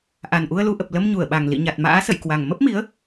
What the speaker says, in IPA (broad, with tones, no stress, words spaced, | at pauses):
ʔa˨˩nʔu˧ə̯lu˧ʔə˨˩p̚ lə˧mɲu˧˩ə̯ɓa˨˩ŋ lḭ˧˨ ɲa˨˩t̚ma̰ː˧˥sə̰˧˨jkwa˨˩ŋ mə˦˥p̚mi˨˦ə̯